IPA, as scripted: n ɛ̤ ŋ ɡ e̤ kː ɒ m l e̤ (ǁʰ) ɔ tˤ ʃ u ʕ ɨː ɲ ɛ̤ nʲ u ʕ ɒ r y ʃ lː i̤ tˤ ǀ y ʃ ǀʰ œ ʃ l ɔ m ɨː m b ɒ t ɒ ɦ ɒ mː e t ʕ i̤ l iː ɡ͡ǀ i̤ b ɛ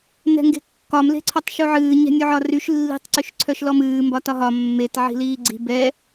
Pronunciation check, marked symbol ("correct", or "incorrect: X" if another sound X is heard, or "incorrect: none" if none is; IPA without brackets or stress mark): incorrect: ǀʰ